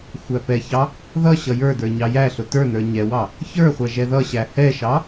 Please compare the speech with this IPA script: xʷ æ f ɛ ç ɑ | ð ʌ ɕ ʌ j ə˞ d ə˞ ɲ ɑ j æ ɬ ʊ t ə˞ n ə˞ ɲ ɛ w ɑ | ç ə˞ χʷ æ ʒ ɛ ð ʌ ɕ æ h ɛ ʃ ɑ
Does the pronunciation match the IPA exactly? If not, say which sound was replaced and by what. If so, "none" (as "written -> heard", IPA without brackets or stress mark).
f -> p